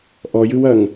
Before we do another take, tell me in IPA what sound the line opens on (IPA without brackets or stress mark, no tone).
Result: ʔ